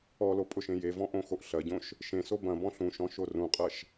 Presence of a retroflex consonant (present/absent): absent